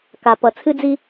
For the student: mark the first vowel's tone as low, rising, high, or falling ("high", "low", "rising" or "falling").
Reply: low